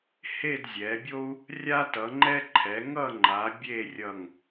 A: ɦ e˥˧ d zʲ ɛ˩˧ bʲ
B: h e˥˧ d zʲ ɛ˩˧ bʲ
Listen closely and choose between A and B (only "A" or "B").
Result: B